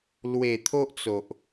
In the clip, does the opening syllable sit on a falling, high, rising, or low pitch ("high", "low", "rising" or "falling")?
low